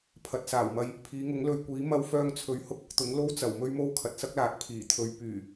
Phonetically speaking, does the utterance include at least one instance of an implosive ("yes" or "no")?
no